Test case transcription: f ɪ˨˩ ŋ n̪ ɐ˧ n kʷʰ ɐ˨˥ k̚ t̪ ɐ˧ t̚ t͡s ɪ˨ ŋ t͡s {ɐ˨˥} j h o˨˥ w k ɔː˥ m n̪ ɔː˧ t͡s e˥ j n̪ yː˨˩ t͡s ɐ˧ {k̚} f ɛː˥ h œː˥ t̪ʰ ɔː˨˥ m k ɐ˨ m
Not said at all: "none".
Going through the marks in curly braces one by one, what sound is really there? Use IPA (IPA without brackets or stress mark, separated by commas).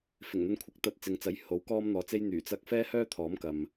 ɐ˨˥, k̚